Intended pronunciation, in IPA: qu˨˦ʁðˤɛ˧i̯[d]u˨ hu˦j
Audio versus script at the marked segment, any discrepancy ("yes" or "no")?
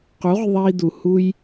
no